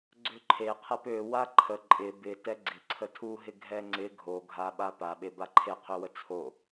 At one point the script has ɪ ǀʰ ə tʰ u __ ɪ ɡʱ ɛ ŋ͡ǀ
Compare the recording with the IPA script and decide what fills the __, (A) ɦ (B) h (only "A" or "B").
A